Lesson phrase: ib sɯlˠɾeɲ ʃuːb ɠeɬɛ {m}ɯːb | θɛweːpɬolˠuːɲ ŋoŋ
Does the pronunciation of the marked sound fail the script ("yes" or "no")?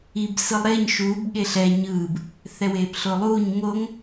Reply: yes